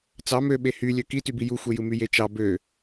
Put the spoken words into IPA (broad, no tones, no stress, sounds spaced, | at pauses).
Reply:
t͡s ɑ m ø ɓ e h y lʲ ø k i t y b i j u xʷ e j ɯ m y j e t͡ʃ ɑ b ø